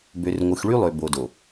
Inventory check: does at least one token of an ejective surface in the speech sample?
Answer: no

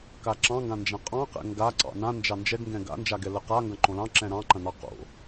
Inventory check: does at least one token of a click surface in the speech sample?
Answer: yes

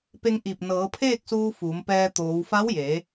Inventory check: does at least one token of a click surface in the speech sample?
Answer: no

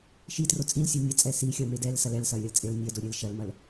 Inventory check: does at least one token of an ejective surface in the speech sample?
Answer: yes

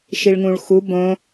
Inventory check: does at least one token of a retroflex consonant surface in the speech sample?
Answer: yes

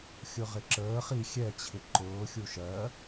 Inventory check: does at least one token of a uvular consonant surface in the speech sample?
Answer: yes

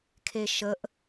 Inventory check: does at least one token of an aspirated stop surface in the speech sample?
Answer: yes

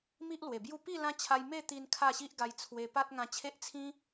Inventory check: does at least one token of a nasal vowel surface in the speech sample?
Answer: yes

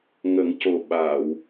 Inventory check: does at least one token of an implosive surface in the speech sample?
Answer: yes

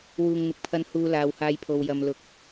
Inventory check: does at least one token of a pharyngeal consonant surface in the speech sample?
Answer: no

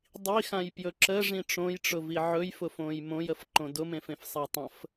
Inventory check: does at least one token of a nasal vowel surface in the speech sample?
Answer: yes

